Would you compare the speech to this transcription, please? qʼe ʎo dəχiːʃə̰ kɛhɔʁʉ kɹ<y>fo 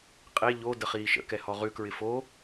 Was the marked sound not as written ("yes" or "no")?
yes